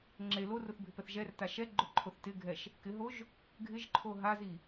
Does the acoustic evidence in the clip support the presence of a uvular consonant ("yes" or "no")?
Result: no